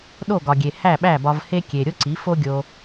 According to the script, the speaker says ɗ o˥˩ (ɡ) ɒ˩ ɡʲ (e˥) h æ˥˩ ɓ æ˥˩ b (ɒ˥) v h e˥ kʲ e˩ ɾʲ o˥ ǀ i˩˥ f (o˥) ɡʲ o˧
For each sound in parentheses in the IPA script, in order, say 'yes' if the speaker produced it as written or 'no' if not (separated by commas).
yes, no, no, yes